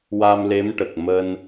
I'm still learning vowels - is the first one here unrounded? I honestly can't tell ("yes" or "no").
yes